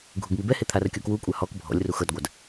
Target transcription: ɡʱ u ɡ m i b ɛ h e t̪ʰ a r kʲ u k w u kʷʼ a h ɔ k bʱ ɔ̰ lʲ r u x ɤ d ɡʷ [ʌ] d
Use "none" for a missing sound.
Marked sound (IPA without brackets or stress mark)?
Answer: a